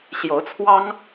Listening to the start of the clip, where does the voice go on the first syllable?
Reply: rising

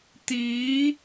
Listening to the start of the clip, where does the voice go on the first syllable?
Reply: rising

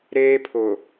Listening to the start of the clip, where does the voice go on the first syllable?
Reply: high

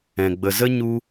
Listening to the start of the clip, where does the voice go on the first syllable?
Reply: low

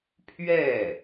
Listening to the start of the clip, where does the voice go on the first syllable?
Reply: falling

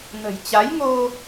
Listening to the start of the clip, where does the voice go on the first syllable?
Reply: low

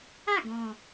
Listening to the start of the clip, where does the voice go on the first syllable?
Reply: falling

